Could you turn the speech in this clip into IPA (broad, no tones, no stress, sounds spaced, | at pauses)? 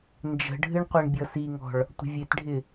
n d͡ʒ ə̤ ɖʱ ɨ ɳ qʷ ɛ ɳ bʲ ʌ s i ŋ ɔ̤ ɭ | tʷ ə̤ vʲ e t ɖʱ ɪ